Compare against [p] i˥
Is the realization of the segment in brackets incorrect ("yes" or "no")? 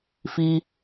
yes